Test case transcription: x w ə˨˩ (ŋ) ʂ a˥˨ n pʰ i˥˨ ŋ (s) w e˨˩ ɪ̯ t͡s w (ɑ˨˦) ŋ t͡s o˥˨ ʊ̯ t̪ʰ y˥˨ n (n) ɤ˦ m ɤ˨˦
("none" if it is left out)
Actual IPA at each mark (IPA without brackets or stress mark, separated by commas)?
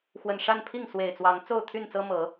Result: n, s, ɑ˨˦, t͡s